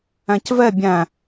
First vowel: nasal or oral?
nasal